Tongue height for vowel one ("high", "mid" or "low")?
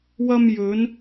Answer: low